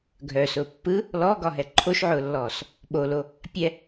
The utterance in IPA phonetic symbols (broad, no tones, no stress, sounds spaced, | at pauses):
ɡʱ œ s ʊː pː ɯ | l ɔ ɡ ɒ ɦ ɛ ǃʰ o ʃ ʕ ʊː lː ɔː s | ɓ o l o | pʲ ɛ